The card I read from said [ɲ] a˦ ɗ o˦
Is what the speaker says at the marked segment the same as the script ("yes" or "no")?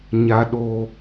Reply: yes